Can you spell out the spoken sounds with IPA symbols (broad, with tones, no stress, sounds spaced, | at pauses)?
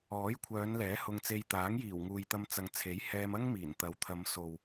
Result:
ɔː˨˥ j kʷʰ œː˨˧ n l ɛː˨˥ h ʊ˧ ŋ t͡s e˧ j t̪ aː˨˥ ŋ j iː˨˩ w ŋ uː˨ j t̪ ɐ˧ m t͡s ɐ˨ ŋ t͡sʰ e˨˥ j h ɛː˧ m ɐ˥ ŋ m iː˨˩ n t̪ ɐ˨˥ w t̪ʰ ɐ˨˧ m s o˨ w